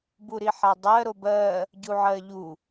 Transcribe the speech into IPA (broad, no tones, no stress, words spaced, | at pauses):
buɾiħadˤɜ ɾobɜ | ɟuʕɜʎu